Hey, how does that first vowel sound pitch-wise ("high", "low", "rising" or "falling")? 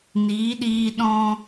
rising